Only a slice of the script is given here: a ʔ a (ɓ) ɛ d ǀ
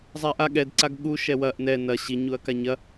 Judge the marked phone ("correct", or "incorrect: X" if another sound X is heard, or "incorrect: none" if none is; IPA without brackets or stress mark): incorrect: ɠ